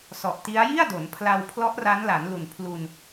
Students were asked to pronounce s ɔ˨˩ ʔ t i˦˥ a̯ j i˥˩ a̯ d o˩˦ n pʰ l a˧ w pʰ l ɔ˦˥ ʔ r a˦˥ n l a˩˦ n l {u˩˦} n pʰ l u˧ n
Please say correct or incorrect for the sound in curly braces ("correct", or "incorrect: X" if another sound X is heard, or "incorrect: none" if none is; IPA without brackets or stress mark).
incorrect: u˨˩